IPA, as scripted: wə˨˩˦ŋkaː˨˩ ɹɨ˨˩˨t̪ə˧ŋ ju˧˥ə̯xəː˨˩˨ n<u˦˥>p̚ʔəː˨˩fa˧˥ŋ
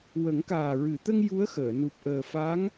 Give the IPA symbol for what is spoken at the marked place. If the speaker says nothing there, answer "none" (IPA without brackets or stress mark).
u˨˩